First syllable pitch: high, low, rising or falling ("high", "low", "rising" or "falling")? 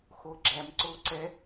rising